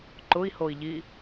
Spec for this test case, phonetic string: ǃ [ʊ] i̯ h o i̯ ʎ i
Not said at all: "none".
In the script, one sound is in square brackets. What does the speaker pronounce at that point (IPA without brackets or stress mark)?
ʊ